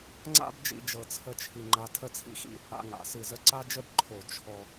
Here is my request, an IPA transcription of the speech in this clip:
ŋ͡ǀ a̰˥ b d͡ʒ ḭ˧ d͡ʒ ɤ˧ t͡sʰ ə˥ t͡ʃʰ i˧ ŋ͡ǃ a˧ tʰ ə˥˧ t͡sʰ ḭ˥ x ḭ˥˧ | a̰˧ ŋ a̰˩˧ s ɨ˧˩ z ə˥ ǀ a˥ d͡ʒ ə˥ b ǃʰ o˧˩ t͡ʃʰ ɔ˧

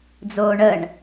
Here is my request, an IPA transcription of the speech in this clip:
d͡z oː ɳ ə ɳ

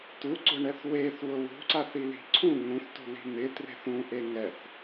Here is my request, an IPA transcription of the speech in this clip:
t u ɡ͡ǀ ʊ ɳ ɛ θ w e θ w ʊ w ṳ ǀ a θ i l i̤ ǀʰ ũ ŋ ũ θ t ṳ l i̤ n̪ ɪ t r e̤ θ ũ ʔ e ŋ ɛ θ

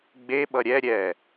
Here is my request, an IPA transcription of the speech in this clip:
ɡ͡b e ɓ ʌ ɾʲ ɛ ɾʲ ɛ

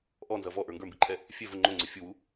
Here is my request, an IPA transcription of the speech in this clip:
ʔ ɔ n z ʌ v ɔ ʔ ə˞ ŋ ɡ ə˞ m b i ǃʰ ɛ | fʲ ɛ v ʊ ŋ͡ǃ ʊ ŋ͡ǀ ɪ fʲ u w u

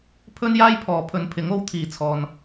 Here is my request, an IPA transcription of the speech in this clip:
pʰ ɵ˥ n j aː˥ j pʰ ɔː˨˥ pʰ ɵ˨ n pʰ ɪ˨˥ ŋ o˨˥ w t̪ʰ iː˨˧ t͡sʰ ɔː˧ n

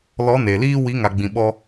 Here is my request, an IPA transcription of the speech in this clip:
l ɔ˨˦ n e˨ l iː˦ w i˨˦ ŋ a˨ ɡ͡b ĩ˨ ɓ ɔ˧

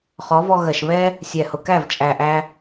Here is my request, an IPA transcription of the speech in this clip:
χ ɔ˨˦ v ɔ˧ ɣ ɜ˨ ʃ β ɛ˦ | sʲ ɛ˨ h ʊ˨ k æ˦˨ v t͡ʃʼ æ˨ ʔ æ˧

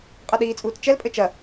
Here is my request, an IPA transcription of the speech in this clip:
qʼ ɐ ɗ iː t͡sʼ uː t t͡ʃ ɛ l pʼ ɘ t͡ʃ ɐ

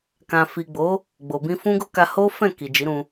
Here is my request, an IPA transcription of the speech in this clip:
k ã˨ f i˨ ɡ͡b o˨˦ | ɡ͡b o˨ b ĩ˧ f ũ˦ ɡ o˦ k a˧ h o˦ f ɛ̃˦˨ k i˨ d͡ʒ i˨˦ ɾ ũ˧

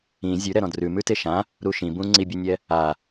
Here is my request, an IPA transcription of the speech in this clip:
ĩ zʲ ʉ ɾ ɛ ɾ ɔ̃ d r ʉ m ʉ t e ʃ ã | ɾ u ʃ ĩ b ũ ŋ͡ǀ i bʲ ɛ nʲ ɛ | a

